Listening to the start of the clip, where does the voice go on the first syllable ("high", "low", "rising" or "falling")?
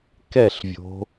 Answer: falling